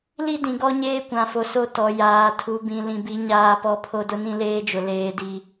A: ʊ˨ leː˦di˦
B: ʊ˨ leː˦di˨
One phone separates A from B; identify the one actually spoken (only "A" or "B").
A